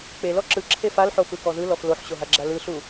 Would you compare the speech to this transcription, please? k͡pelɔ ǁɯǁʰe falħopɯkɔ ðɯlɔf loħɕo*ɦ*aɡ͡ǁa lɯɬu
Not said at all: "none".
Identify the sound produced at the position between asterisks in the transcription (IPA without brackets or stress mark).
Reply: ɦ